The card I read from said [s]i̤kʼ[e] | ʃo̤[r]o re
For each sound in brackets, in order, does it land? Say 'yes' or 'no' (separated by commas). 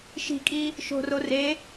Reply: no, no, yes